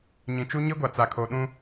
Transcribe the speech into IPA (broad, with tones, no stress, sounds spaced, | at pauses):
ɲ ĩ˨ t͡ʃ u˦ ɲ i˦ ɡʷ a˨ t͡s a˨ kʰ o˨ ɗ ũ˦